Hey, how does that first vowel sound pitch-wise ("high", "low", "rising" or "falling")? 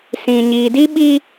low